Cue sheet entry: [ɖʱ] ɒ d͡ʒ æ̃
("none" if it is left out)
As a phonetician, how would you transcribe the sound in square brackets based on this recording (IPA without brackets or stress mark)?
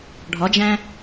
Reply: ɖʱ